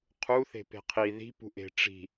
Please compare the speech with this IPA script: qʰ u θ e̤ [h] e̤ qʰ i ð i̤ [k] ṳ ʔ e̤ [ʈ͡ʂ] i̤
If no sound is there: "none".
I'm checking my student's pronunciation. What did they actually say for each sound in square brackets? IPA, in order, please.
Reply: p, p, ʈ͡ʂ

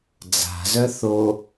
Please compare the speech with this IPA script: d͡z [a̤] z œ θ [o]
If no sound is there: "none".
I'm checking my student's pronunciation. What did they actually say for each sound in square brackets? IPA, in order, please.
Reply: a̤, o

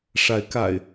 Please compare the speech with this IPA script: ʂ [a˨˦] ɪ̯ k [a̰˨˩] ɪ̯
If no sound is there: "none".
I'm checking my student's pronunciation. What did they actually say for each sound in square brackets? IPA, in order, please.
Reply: a˨˦, a̰˨˩

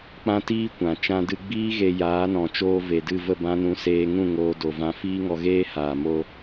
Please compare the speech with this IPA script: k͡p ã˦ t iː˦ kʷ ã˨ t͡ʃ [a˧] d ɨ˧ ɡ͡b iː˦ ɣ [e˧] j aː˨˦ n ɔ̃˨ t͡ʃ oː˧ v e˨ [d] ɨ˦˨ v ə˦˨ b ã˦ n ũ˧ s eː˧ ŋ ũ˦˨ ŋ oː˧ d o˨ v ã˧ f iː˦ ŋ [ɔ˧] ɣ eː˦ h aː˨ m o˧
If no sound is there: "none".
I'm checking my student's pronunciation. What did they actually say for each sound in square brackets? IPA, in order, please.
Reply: ã˧, e˧, d, ɔ˧

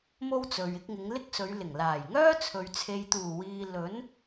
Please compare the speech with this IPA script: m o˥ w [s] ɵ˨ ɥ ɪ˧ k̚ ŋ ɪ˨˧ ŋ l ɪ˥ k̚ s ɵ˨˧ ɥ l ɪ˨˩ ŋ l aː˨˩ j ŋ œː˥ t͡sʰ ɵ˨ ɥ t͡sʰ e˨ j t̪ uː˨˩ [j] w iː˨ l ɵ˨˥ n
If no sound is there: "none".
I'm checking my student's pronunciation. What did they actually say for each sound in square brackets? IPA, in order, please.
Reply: t͡s, none

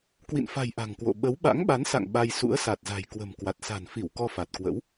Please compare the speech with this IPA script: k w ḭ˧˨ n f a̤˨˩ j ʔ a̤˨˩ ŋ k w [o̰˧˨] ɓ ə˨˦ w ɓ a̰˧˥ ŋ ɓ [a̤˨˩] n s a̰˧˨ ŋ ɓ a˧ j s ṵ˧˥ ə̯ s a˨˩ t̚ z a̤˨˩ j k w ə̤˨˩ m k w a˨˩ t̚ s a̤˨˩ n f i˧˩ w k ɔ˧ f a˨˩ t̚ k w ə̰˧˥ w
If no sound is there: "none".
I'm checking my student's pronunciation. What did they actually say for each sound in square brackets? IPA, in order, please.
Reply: o̰˧˨, a˨˦

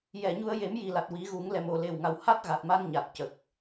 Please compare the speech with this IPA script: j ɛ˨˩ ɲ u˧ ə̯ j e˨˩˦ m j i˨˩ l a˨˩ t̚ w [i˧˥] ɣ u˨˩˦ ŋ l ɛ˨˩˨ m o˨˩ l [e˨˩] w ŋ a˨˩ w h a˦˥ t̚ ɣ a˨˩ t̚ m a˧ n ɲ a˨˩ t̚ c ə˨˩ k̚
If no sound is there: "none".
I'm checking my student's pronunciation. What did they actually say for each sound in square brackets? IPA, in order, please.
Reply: i˨˩˦, e˨˩

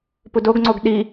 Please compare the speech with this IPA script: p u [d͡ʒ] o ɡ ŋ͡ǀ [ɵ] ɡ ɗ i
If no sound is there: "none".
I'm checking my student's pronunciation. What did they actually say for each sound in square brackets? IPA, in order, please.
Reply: d, o

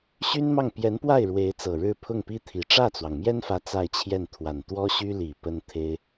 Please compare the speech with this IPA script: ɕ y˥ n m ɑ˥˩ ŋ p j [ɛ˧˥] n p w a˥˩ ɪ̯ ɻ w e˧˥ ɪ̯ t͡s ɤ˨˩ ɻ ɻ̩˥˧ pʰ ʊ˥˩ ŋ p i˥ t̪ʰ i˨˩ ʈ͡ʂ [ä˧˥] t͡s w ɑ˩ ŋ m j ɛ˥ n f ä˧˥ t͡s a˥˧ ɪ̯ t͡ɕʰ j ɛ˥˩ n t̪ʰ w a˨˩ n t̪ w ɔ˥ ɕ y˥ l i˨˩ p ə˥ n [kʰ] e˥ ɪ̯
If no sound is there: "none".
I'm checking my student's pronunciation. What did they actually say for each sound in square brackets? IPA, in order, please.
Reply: ɛ˧˥, ä˥˩, t̪ʰ

